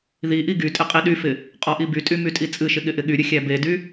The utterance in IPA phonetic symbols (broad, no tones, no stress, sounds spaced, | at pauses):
ð i ʔ i ɡ y tʼ ɪ qʼ i ɗ y f ɪ | qʼ ɔ ʔ i b y tʼ y m y tʼ i t͡sʼ ɨ ʃ ɪ ɠ ɪ ʔ ɪ ɠ y ɾʲ ɨ xʲ æ b e d y